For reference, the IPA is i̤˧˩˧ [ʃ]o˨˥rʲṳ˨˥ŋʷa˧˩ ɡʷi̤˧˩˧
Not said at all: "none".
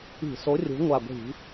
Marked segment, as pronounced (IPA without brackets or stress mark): s